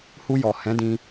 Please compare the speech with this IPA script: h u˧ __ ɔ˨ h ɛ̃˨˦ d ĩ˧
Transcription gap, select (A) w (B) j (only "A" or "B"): B